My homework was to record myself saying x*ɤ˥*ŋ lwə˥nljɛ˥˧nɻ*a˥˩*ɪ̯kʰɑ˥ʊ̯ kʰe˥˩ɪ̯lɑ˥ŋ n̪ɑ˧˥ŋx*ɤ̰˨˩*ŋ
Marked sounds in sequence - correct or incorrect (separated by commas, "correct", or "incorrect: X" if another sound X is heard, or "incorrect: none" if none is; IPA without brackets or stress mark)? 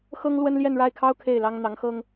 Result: correct, correct, incorrect: ɤ˥